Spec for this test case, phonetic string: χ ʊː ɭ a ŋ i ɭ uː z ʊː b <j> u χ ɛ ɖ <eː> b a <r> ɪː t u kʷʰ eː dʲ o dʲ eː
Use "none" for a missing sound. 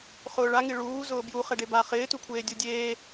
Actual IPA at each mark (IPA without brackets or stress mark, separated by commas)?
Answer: j, e, χ